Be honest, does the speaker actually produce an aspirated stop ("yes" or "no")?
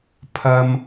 yes